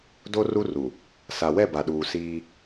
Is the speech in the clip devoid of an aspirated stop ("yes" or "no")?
yes